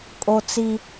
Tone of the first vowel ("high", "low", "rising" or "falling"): high